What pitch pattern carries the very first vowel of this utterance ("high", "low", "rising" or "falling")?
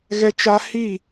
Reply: high